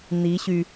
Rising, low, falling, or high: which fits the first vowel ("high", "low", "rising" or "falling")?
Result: rising